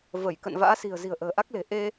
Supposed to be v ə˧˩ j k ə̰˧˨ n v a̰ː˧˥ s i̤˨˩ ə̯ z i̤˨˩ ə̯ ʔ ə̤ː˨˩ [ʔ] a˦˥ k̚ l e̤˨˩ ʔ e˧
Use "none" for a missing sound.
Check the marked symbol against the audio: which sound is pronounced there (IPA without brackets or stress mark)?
ʔ